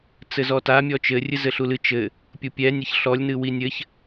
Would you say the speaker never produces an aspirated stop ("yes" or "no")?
yes